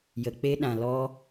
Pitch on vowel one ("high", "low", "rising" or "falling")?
low